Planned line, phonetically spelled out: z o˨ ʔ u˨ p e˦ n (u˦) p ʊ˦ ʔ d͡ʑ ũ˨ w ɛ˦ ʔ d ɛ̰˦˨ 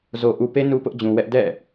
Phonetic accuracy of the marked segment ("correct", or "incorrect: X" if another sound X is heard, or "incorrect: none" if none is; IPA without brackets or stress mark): correct